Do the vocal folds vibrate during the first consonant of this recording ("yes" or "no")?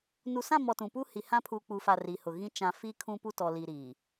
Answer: yes